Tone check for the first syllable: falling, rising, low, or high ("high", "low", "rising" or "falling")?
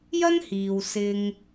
high